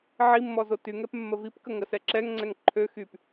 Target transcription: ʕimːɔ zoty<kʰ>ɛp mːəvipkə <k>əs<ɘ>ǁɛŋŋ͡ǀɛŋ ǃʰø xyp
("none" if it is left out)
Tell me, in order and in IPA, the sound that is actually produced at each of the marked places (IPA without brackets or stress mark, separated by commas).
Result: ŋ, ŋ, ɛ